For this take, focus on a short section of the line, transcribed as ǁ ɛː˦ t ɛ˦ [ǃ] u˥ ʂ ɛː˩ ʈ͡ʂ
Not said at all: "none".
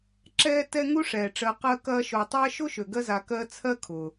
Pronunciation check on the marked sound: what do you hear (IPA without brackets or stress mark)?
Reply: ŋ